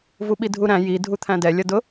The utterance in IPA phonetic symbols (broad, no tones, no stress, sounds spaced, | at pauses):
v u ɓ i dʱ u ɾ æ̃ j i dʱ u t̪ʰ æ̃ d ɛ lʲ ʌ d ʊ